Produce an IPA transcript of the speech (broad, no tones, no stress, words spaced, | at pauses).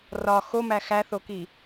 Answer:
rɒ xomæ xæθoki